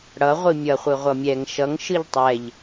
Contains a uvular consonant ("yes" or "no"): yes